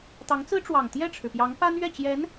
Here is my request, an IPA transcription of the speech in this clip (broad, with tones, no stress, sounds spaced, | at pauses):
t̪ ɑ˧˥ ŋ t͡s ɹ̩˥ ʈ͡ʂ w ɑ˨˩ ŋ t̪ j ɛ˥˩ ʈ͡ʂʰ ɻ̩˩ p j ɑ˧˥ ŋ p a˥ n ɥ ɛ˥˩ t͡ɕ j ɛ˧˥ n